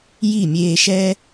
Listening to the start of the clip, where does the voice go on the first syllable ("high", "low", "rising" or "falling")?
falling